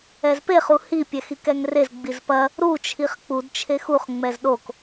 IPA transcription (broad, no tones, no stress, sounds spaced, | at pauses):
ɛ z p e χ u h i pʲ ɛ x i k ɛ ŋ r e z ɡ͡b i z p ɐ | ɾ u t͡ʃʰ i χ k͡p u d t͡ʃʰ e x u χ ŋ͡m ɛ z ɗ o k